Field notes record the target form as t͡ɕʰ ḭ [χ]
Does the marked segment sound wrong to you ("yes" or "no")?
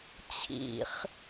no